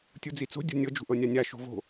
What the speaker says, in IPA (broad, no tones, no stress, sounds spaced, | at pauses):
tʲ u d͡z i t͡s o̤ dʲ o̤ nʲ ɤ d͡ʒ ṳ ʔ ɤ nʲ a nʲ a ʃ o̤ v o̤